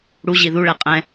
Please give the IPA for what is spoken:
ɽuʑi ðuɭɛ qʼɛ̃

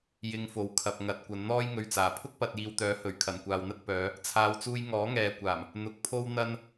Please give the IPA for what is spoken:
jɪ˧ŋfo˨w kʰɐ˨p̚ŋɐ˨˥t̚kʷɐ˨˧n n̪ɔː˥jŋɵ˧ɥt͡saː˨˩ pʰʊ˥k̚pɐ˨t̚ jiː˨wt̪œː˨˥hɵ˨˩ɥ kʰɐ˨˩nkʷaː˨wn̪ɐ˥t̚ pœː˨˧ | t͡sʰaː˨˧wt͡suː˧j ŋɔː˨˥ŋɛː˨kʷaː˨˩m | n̪ʊ˨˥k̚pʰo˥w n̪ɐ˥n

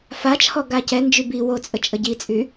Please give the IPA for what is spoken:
fat͡ʃʰɔ ɡacɛ nd͡ʒybi wot͡sʼə t͡ʃʼəɟit͡sʼy

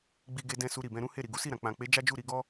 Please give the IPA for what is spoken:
ɡ͡bi˧ɡe˧dɛ̃˧ su˧ɾi˨bɛ̃˧ ɾũ˦he˦˨ ɾi˨ɡu˨˦si˦˨ɾã˨ k͡pã˨k͡pe˨˦ d͡ʒa˦d͡ʒu˦˨ɾi˧ɡɔ˦

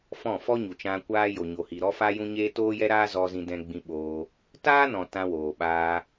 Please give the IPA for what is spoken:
fɔ̃˦˨ fɔ˦ɲu˨t͡ʃã˧ kʷaː˦ jo˨ɲo˨hi˨ ɾɔ˦fa˦jũ˦ɲeː˦ toː˦jɛ˦ɾaː˦ zɔ˧ zĩ˧dɛ̃˧ɡ͡bĩ˧ɓoː˧ | taː˦nɔ̃˨ tã˧woː˨ɓaː˧

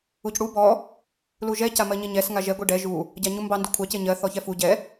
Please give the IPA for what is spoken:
ucɽu bɔ | luʒɛ camɜɲeɲɛs ŋaʒɛ ɡʷiɖɛ ʒu | ɟaɲumbɑ ndukʷʰɑ ceɲɜ θɔçɛfu ɟɛ

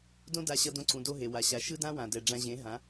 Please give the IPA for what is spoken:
dõ˦da˧ɕʌ˧ dõ˧ǀũ˨do˧ ɦe˨wa˨ ɕa˨ ʃɯ˦dã˦wã˨ dɛ˨ɖ͡ʐã˧ʑẽ˨˦ ɦã˨˦

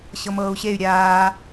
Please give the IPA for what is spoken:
ɕɤmɤːu̯ɕey̯ ɾʲaː

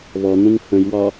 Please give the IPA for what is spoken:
βɔn̪ũŋ hə̃jwɒ

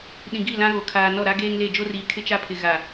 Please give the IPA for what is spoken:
ɗĩ˨ɡi˦˨ lã˦ɣo˨kʰaː˨ nɔ˦˨ ɾa˦ɡeː˦ŋle˦˨ d͡ʒo˦riː˨ kʰɪ˦t͡ʃa˦pʰɪ˨ ɣa˨

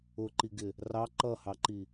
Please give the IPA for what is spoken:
ʊǃiɡɪ | rɑ ǃʌhɑǃi

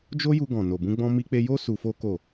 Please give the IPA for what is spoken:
d͡ʒo˦ju˧ ɡɔ̃˨no˨bũ˧ɡ͡bɔ̃˧ mi˧k͡pe˧jo˦ su˧fo˦ ko˦˨

